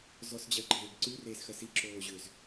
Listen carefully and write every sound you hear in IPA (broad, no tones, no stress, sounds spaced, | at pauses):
z ɔ s d͡ʑ ɜ ɡ͡ǃ eː ɡ ǀ ʉ r eː s x ɜ s i ǁ oː ʑ ʏ z